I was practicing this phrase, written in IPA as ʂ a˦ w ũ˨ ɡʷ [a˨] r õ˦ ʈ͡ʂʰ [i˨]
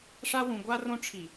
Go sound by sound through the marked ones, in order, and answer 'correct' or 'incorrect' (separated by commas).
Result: incorrect, correct